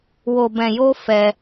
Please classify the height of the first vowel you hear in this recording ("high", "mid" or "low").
mid